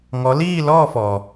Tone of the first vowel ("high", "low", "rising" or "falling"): rising